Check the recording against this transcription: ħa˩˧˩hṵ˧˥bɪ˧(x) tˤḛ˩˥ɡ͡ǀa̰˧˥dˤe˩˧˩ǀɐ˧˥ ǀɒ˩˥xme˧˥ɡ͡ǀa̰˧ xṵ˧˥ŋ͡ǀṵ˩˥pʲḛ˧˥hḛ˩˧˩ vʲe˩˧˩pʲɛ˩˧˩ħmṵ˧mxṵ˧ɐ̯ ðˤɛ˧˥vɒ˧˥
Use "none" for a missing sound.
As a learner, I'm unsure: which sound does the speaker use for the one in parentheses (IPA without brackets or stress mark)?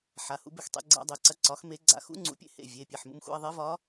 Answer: x